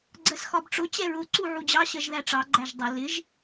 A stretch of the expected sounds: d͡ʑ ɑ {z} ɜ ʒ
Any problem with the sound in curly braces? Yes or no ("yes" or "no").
yes